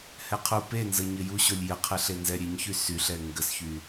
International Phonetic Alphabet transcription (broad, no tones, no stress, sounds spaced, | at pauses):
h ɛ qʰ u p e n z ə ɲ ɘ j u ɕ o lʲ j ə qʰ ɛ ɬ e n z ɛ ɾʲ e ɲ ç y s y ɬ ɛ ŋ ɡ ə s ç y